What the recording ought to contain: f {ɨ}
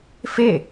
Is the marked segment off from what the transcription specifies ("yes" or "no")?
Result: yes